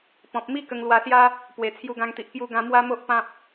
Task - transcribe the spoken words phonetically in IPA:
p ɔ̃˨ p̚ m i˦ k ə˧ ŋ l w a˧ s j a˦ | p w e˨˩ t͡sʰ j u˧ ɡ ã˧ ŋ t̪ i˨ ʔ k j u˧ ɡ ã˧ m w a˦ m o˦ ʔ p ã˦ p̚

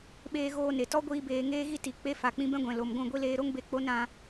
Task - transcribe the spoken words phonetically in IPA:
ɓ eː˧ ɣ oː˧ n e˨ t ɔ˦ ɡʷ iː˧ b eː˧ ŋ eː˦ ɣ i˦ t i˨ k͡p e˦ f a˨ k͡p ĩ˧ b ɛ̃˦ ɡʷ ɛ̃˨ l o˨ m ɡʷ ũ˦˨ ɡʷ i˦ l eː˧ ɾ o˦ ŋ b e˧ k͡p o˦ n ɾ ã˧

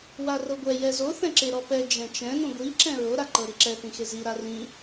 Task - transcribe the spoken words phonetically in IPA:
w a r ɤ ɡʷ ɛ j ɛ z o θ ɛ̃ ǁ e ɾ ɔ p ɛ d͡ʒ ɛ̃ t͡ʃ ɛ̃ n ũ ɡʷ i ǁ ɛ̃ ɹ o ɾ a ǃ ɤ ɾ i ǁ ɛ θ ĩ x e z i ɾ a r ĩ

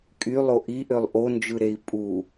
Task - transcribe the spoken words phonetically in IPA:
kʼ y lˠ o ʔ i ʔ ø lˠ ʔ o n d͡ʒ ɯ ɾ e i̯ pʼ u

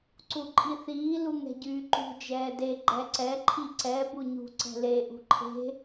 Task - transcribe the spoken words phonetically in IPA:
ǀ u ǃʼ i θ iː l u ŋ ɛ̤ ɟ yː ǃ ṳ d͡ʒ ɛː d e ɡ͡ǃ ɛ ǀ ɛ ǃʰ i ǀ ɛ b u ɲ ṳ ǀ ɛ̤ l e ʔ ṳ ǃʰ e̤

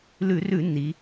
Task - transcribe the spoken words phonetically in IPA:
l ʉ˧˩˧ r ʉ˧˩˧ nː i˩˧

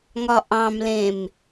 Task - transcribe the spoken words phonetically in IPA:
ŋ ɒ ʔ ɑ̃ m l ẽ m

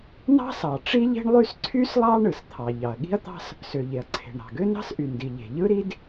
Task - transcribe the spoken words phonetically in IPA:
n ɑ̤˥ s ɑ˩ ʈ͡ʂ i˥ ʎ e̤˥ ɳ lˠ y˥ s ǀʰ y˥ s lˠ ɑ˥ ɳ ɯ˩ s t̪ʰ ɑ˩ ʎ ɑ˩ ɐ̯ ɠ i̤˥ ɐ̯ t̪ ɑ̤˥ s | s ø˩ ʎ e˩ ɐ̯ ǀʰ e̤˩ ɳ ɾ ɑ̤˩ ɡ ø˥ n ɑ̤˥ s ʔ y˩ n d i˩ ʎ e̤˩ ʎ ɯ˥ ɾ i˥ d

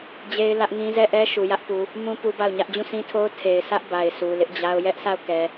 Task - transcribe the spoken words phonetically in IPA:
d͡ʑ e˦ ɪ̯ l ä˦ ʔ ŋ ĩ˦ z ɛ˦˨ ʔ ɛ˦ ʃ u˨ j ä˦ ʔ p u˨ | m ũ˦ p u˦ b a˦˨ ʊ̯ ɲ ä˦ ʔ d͡ʑ ũ˦˨ sʰ ĩ˦ tʰ o˦ ʊ̯ tʰ e˨ ɪ̯ sʰ ä˦ ʔ b a˨ ɪ̯ s u˨ l ɪ˦ ʔ d͡ʑ a˦ ʊ̯ j ɛ˦ ʔ s a˦˨ ʊ̯ k ɛ˨

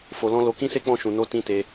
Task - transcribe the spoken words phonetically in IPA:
f o˧ l ɔ̃˦ l o˧ k ĩ˦ s e˦ k͡p ɔ̃˦˨ ʃ ũ˧ n o˦ t ĩ˦ t e˦

